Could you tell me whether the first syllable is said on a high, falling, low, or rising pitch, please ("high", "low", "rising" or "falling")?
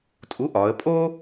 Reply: rising